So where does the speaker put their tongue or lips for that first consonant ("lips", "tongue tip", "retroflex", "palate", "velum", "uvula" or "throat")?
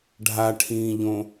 retroflex